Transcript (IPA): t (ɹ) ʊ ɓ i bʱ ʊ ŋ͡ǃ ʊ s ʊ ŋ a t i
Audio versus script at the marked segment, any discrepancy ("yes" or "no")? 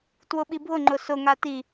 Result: yes